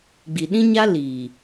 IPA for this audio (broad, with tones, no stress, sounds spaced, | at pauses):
ɡ͡b i˨ ɗ ĩ˦ ɲ a˦ l iː˨